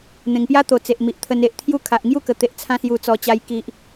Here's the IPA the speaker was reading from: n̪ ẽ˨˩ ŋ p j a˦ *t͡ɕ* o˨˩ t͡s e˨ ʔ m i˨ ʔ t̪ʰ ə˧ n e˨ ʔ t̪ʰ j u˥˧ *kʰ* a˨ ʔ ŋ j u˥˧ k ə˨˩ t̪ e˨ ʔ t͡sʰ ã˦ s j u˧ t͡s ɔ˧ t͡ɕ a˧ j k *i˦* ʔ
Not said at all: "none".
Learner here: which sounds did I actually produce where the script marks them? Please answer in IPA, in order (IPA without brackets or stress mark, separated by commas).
t̪, kʰ, i˨